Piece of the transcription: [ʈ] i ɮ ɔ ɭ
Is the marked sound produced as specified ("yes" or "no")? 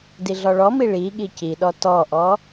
no